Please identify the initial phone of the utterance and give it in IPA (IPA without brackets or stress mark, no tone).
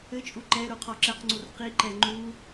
ɘ